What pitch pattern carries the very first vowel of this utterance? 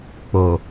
low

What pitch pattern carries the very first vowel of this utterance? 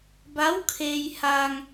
rising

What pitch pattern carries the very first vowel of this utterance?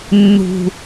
high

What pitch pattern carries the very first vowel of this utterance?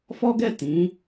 high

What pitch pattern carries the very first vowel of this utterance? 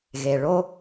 low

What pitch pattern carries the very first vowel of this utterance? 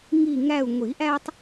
falling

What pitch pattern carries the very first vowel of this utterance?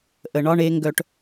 low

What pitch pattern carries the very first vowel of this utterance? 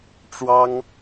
high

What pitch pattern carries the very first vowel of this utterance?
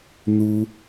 low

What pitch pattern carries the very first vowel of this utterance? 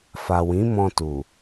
low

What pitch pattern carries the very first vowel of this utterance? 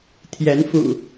rising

